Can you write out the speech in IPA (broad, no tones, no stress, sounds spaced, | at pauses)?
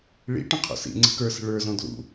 ɭ ḭ ʈ ə̃ qʰ ɔ̰ s ḭ ŋ͡ǀ ə̤ k ə˞ s ə̤ ɭ ə˞ z ɔ̃ d l ṵ